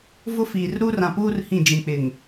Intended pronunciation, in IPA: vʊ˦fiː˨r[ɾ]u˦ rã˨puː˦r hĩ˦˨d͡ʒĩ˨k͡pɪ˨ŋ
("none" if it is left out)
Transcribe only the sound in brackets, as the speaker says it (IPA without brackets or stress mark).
ɾ